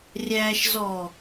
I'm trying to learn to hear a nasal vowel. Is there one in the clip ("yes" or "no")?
no